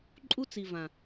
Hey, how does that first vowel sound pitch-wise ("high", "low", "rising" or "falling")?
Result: high